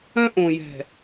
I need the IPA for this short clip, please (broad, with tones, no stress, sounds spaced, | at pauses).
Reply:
œ̃˦ ʔ õ˨ j ɛ̤˨